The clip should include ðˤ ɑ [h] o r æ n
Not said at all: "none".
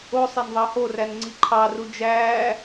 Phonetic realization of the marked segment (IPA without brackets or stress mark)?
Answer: h